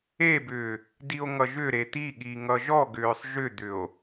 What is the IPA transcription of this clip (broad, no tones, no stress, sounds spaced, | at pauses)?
e b ʏː | d i o̯ ŋ ʌ ʒ ʏ ɾ e t̪ i ɠ i ŋ ʌ ʒ ɔ ɡ ʏː sˤ ʒ ʏ d̪ ʏ o̯